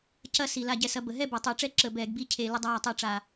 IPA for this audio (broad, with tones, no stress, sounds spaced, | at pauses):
c ɐ˦ s i˩ l a˧˩ ɟ ɛ˧˩˧ s ɐ˨˦ b ə˩ ɦ ɛ˥˨ b ɛ˩ tˤ əː˧˩˧ ʈ͡ʂ ɛ˥˨ ǁ ə˧˩˧ b ɛː˧˩˧ ɡ b i˦ cʰ e˧˩˧ l ə˦ dˤ aː˥˨ tˤ ɛ˥˨ ʈ͡ʂ a˧˩